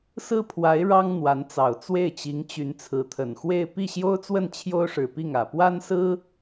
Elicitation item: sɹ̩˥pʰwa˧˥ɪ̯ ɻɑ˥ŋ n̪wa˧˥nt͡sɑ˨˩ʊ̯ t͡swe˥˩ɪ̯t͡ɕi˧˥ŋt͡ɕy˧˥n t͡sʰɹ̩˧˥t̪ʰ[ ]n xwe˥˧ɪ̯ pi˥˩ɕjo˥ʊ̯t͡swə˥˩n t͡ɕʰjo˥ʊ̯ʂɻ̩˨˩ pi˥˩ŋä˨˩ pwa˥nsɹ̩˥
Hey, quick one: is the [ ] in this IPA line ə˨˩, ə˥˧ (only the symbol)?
ə˨˩